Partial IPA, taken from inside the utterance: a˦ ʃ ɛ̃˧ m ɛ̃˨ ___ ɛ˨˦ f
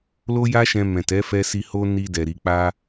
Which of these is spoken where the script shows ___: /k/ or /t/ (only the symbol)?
t